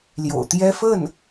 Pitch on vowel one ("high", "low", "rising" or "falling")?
low